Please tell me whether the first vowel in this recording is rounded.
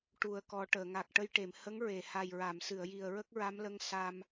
yes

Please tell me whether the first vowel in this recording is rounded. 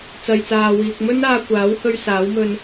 no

